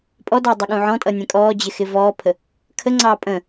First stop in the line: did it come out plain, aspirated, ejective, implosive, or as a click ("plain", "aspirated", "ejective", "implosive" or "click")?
ejective